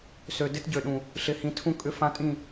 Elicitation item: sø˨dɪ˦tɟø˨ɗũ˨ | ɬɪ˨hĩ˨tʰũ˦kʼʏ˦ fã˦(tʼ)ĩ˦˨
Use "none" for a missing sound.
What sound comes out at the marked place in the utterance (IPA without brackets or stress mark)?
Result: tʼ